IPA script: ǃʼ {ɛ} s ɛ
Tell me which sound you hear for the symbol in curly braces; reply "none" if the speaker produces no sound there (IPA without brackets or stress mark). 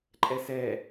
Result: ɛ